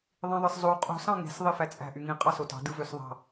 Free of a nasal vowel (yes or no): no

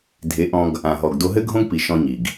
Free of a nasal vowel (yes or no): no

